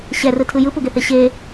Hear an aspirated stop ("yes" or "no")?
yes